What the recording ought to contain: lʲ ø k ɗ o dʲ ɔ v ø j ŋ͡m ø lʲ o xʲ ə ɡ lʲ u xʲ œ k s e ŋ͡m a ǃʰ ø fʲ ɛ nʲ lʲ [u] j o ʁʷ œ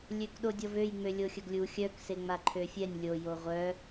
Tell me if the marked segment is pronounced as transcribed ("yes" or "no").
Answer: no